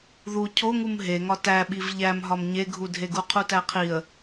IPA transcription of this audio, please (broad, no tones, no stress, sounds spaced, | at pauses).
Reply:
ð u cʰ o ŋ u m ɦ e ŋ ɒ t æ ɓ i v ʎ æ m ɦ ɒ m ɲ e ɡʱ u dʱ e ɡ u qʰ u t æ qʰ i ə̯